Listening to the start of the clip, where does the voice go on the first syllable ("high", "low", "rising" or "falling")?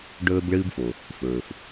high